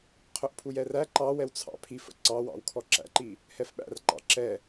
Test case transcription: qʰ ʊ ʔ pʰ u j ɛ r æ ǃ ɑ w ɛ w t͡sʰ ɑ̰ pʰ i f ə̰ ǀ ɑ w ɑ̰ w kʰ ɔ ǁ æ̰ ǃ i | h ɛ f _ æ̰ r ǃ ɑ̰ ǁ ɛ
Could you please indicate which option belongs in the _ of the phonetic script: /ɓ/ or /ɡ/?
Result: ɓ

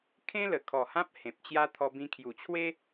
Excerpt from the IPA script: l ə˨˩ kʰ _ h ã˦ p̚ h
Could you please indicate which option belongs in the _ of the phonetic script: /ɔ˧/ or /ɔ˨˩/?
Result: ɔ˨˩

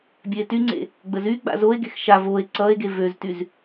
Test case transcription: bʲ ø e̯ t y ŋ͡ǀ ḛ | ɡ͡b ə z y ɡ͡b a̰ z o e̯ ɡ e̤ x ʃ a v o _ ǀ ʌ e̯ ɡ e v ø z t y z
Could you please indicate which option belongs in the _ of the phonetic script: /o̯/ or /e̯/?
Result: e̯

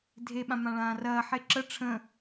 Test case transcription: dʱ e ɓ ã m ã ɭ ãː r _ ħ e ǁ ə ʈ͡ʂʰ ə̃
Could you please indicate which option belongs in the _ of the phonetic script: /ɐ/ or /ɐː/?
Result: ɐː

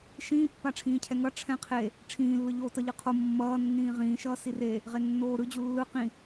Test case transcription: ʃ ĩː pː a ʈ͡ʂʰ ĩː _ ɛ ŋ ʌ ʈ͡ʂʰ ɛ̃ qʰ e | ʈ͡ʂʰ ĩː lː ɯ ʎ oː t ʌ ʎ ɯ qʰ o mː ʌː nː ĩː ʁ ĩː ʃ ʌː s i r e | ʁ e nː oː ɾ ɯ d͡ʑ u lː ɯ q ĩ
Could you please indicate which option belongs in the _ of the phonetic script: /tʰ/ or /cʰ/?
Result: cʰ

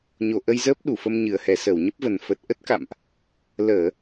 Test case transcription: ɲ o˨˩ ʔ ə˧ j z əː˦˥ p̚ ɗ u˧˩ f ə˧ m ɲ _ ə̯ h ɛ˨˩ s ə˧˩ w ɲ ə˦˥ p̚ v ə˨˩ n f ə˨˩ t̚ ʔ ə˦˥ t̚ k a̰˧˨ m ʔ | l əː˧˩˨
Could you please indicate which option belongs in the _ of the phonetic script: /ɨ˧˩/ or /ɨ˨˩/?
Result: ɨ˨˩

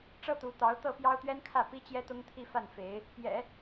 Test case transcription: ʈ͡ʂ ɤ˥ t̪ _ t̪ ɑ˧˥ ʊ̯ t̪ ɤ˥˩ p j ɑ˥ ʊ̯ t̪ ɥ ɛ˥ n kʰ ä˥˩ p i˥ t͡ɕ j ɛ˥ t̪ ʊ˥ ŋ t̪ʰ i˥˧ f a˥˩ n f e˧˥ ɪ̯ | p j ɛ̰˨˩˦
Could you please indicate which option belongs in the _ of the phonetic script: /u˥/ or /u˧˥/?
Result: u˧˥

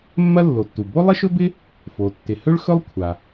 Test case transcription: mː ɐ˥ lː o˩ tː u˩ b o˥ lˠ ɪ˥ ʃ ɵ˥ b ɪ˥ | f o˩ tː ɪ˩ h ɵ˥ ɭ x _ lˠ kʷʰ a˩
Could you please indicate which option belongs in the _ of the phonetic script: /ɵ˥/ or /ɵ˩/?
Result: ɵ˥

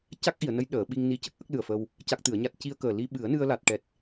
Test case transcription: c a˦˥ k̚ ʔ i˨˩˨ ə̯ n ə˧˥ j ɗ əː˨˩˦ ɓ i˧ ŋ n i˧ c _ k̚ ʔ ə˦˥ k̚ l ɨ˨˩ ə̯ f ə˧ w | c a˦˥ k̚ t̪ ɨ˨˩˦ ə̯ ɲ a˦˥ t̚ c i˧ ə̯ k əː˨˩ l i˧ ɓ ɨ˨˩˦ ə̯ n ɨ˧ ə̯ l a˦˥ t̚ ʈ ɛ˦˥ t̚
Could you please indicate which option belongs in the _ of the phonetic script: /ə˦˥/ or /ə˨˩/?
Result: ə˦˥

